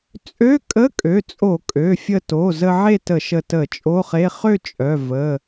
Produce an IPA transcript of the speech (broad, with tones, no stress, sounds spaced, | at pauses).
t͡sʼ ø˧˥˧ kʼ ə˧˥˧ kʼ ø˩˧˩ t͡sʼ o˧˩˧ kʼ ø˩˧˩ fʲ ə˧ t o˩˧˩ z ə˧ ʕ e˥˨ t ə˧˩˧ ʃ ə˧ t ə˧˩˧ t͡ʃʼ o˧˥˧ χ e˧˥˧ χ ø˥˨ t͡ʃʼ œ˩˧˩ v ə˩˧˩